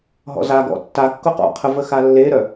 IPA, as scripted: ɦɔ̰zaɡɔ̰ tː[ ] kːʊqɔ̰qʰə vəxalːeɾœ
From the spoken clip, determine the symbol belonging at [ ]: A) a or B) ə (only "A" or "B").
A